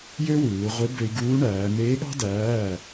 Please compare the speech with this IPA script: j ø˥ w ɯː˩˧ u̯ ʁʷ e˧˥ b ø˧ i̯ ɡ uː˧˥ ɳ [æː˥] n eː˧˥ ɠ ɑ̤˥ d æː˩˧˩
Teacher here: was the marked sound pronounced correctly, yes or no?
no